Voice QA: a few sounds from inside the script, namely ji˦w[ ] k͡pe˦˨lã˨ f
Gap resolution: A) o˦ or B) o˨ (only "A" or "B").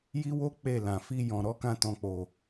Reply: A